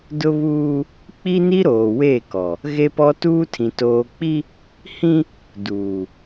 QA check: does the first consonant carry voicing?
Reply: yes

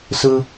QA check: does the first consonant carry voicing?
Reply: no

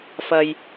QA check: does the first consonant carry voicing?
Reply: no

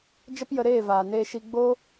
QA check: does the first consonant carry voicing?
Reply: yes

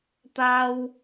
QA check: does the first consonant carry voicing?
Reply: no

